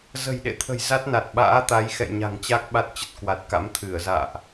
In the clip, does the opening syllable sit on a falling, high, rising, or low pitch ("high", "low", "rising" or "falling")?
low